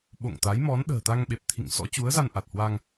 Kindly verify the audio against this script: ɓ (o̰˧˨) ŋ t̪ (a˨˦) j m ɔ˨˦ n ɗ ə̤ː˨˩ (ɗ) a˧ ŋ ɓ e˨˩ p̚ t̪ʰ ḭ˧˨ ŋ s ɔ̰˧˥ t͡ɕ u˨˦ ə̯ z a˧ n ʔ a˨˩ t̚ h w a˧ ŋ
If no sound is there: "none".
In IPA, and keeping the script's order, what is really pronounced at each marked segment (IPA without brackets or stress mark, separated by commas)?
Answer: o̰˧˨, a˨˦, t̪